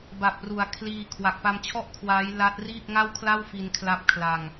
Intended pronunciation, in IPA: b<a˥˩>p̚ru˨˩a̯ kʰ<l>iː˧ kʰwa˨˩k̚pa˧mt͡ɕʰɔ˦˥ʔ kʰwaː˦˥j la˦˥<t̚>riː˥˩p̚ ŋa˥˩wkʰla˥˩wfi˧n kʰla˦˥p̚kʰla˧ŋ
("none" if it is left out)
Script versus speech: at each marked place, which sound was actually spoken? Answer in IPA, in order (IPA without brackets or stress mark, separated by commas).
a˨˩, l, t̚